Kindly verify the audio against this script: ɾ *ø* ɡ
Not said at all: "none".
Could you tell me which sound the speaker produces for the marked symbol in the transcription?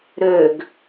ø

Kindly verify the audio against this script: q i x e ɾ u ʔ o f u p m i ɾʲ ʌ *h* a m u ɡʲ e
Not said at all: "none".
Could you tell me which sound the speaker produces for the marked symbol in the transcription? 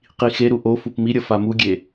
f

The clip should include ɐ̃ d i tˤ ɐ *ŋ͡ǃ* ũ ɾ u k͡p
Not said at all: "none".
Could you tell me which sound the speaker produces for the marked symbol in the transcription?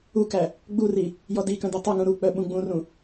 ŋ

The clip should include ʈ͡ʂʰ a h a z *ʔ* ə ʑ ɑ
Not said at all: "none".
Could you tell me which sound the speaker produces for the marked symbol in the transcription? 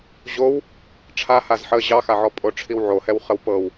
ħ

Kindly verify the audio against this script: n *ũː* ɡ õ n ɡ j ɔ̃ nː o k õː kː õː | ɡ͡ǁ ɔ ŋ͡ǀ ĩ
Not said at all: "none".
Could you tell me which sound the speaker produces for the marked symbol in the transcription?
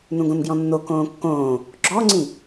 ũ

